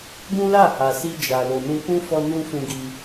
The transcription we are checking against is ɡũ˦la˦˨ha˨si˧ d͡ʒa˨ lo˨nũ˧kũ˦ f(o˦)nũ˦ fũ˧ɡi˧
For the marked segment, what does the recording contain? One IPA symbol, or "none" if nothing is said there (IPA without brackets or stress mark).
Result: ɔ˦